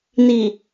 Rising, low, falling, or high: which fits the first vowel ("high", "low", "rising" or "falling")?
low